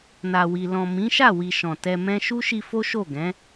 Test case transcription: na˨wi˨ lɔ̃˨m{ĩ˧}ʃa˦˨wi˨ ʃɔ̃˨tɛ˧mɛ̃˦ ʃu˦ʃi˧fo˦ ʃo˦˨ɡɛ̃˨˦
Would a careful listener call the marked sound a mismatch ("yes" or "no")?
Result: yes